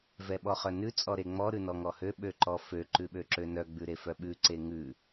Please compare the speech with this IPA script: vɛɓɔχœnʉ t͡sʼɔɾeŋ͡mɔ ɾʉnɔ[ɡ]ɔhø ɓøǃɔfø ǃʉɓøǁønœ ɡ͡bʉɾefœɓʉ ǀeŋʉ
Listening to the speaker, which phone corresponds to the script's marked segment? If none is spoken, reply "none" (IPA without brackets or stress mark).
ŋ